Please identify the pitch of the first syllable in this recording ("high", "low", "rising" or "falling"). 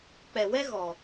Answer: low